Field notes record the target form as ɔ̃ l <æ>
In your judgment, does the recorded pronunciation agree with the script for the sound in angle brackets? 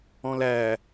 yes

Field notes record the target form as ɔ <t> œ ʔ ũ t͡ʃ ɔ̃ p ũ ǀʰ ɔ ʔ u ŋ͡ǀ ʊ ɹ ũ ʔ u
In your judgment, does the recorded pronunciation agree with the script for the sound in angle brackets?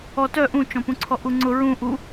yes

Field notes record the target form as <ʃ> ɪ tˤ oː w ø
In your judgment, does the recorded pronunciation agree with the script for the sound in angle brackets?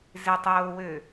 no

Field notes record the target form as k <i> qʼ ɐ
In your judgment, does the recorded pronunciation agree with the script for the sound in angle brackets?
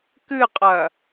no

